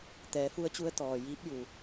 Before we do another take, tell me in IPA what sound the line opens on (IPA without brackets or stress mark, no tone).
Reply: t̪